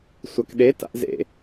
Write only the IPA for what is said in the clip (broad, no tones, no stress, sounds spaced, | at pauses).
sʷ a k ɗ e t a̰ ʔ z ḛ